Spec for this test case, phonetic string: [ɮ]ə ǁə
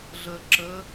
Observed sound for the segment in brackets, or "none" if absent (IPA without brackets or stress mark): ɮ